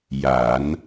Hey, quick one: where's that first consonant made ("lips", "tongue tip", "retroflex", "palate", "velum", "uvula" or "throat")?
palate